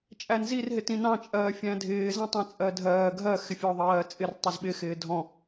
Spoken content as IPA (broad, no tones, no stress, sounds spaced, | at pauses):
t͡ʃʼ æ n z i r ɦ ɪ t ĩ n ɑ̃ t͡ʃʼ ɜː fʲ æ̃ dʱ ɪː z æ̃ tˤ ɑ̃ t͡sʼ ɜ dʱ ɜː ɡʱ ɜ x ɪ fʲ ɔ ðˤ ɜː t͡sʼ ɪ r tˤ ɜ z ɓ ɪ x ɪː dʱ ɔ̃